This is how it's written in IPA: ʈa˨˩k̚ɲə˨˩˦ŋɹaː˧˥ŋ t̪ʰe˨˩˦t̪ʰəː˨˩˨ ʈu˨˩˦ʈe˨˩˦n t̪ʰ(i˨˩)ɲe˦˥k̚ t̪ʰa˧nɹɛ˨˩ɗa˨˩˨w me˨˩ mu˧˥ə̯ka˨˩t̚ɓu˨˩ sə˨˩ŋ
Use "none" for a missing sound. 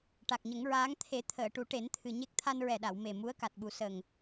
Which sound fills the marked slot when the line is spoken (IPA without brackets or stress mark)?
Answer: ɨ˨˩